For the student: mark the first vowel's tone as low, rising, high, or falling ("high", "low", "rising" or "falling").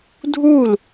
falling